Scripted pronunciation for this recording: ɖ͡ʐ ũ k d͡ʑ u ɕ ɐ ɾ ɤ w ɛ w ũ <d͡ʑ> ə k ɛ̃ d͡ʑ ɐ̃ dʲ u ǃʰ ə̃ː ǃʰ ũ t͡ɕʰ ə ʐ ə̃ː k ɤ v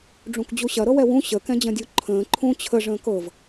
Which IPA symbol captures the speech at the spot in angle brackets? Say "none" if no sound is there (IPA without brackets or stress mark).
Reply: ɕ